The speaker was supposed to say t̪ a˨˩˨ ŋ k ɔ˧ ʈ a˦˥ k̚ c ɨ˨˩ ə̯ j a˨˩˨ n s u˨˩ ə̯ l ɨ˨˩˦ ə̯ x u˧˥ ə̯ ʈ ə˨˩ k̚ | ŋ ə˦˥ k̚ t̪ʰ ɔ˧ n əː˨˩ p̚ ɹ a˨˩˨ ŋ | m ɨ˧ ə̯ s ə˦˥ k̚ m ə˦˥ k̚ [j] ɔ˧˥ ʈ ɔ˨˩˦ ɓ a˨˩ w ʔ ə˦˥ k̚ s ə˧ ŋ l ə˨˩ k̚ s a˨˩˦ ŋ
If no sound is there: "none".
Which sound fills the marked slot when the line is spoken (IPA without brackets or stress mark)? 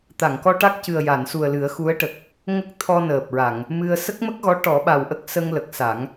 ɣ